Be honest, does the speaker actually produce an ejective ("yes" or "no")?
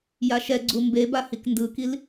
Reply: no